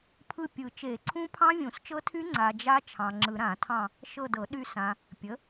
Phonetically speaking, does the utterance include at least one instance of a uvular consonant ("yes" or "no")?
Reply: no